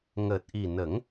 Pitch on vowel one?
low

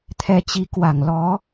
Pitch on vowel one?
rising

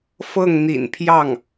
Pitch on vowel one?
falling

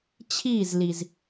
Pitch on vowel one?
falling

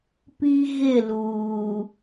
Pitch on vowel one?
high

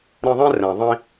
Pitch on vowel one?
high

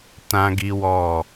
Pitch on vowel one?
high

